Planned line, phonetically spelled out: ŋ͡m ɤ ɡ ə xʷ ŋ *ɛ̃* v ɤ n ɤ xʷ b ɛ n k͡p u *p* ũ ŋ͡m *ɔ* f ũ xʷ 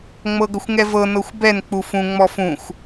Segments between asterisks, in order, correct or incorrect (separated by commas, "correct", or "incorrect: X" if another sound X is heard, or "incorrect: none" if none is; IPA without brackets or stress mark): incorrect: ɛ, incorrect: f, correct